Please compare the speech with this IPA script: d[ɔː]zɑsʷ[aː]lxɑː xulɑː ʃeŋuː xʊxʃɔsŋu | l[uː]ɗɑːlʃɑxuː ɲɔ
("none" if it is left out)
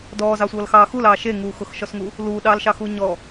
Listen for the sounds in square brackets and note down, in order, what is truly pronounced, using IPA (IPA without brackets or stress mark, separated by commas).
ɔː, ʌː, uː